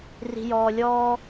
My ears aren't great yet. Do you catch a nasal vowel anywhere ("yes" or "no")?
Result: no